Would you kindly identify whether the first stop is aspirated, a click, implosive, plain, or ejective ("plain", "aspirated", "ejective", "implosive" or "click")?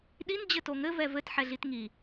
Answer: implosive